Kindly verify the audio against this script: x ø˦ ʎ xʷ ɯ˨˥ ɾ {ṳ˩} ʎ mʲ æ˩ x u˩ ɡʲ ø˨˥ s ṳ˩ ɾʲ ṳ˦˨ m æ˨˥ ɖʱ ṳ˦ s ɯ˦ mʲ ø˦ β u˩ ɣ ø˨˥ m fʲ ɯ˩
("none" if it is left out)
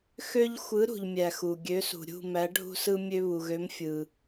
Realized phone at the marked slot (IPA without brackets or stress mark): ṳ˩